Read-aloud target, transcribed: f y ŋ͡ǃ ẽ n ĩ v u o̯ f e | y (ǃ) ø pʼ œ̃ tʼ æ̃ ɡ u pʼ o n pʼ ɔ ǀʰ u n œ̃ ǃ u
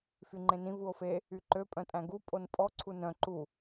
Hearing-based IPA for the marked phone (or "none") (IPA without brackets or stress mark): ǃ